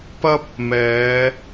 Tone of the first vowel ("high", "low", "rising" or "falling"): high